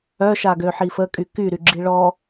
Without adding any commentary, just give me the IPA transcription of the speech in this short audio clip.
œ ʃ a ɡ ø ħ i f ə kʼ y k y ɾ y ɡ͡ǁ i ɭ ɔ

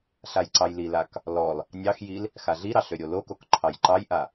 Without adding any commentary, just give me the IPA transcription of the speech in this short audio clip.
ɬ a j ǀ ɑ j l i l a k | l ɔ l | nʲ ɑ x j i l | x a ɮ i ɾ ɑ ɬ ø ɾʲ o l o k o k ǃʰ ɑ j ǃ ɑ j ʔ a

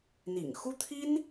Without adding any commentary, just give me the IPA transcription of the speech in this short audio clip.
n̪ ḭ˨˩ ŋ x u˥ t̪ʰ i˥ n

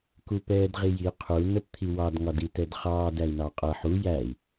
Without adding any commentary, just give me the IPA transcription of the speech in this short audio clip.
k u p ɛː d ʁ i j i qʰ u n ə p t̪ʰ i w ɑ d ŋ ɒ d i t ɛ d χ ɑː d æ i̯ n ɑ qʼ ʌ ħ u j æ i̯

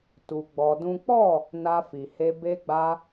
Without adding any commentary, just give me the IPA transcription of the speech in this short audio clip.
t u˧ ɡ͡b ɔ˧ d ũ˦ k͡p ɔ˦˨ | n a˧ f i˨ h e˧ b e˧ ɡ͡b a˧

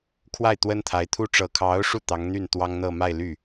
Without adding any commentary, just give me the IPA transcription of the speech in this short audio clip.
kʰ w a˥˩ ɪ̯ t̪ w ə˥ n t̪ʰ a˧˥ ɪ̯ t̪ʰ u˥ ʈ͡ʂ ɤ˨˩ kʰ ɑ˧˥ ʊ̯ ʂ u˥˩ t̪ ɑ˧˥ ŋ n̪ y˥˩ n t̪ w ɑ˥ ŋ n̪ ɤ˥˧ m a˥˧ ɪ̯ l y˥˩

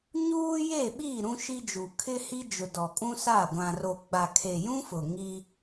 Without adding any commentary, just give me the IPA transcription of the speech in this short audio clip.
ɲ uː˦ j e˦˨ ɓ i˦˨ ɾ ũ˦ ʃ i˦ d͡ʒ u˨ kʰ ɪ˦ h i˦ d͡ʒ ʊ˨ d ɔ˨ kʼ ũ˦ s a˦˨ ɡʷ ã˨ r o˨ ɡ͡b a˨ kʰ e˨ j ũ˦ f ʊ˨ ŋ i˦

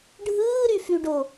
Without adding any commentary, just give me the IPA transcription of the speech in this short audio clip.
ɖʱ ɯː ɾ y f y ɖ o

